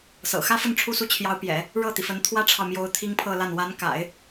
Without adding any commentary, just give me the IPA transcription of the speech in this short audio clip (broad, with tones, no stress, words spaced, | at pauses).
sɤ̰˨˩xä˥fə˥˧n ʈ͡ʂʰu˥˩su˥t͡ɕʰjɑ˧˥ʊ̯pjɛ̰˨˩˦ | ɻɤ˥˩t̪i˩fə˧˥n t̪ʰwä˥ʈ͡ʂʰɑ˨ʊ̯mjo˧˥ʊ̯ t̪ʰi˥ŋpʰɤ˥˧ la˥˩n wa˧˥nka̰˨˩˦ɪ̯